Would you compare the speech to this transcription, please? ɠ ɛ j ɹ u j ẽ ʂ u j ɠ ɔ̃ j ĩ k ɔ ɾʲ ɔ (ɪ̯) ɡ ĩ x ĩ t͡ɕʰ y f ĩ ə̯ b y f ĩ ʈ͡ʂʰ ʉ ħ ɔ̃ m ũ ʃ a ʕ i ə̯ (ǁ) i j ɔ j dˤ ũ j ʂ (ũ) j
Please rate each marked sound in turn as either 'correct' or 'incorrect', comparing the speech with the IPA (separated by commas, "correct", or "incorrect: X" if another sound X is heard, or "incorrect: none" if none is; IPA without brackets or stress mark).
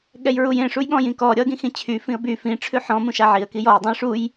incorrect: ə̯, incorrect: k, incorrect: u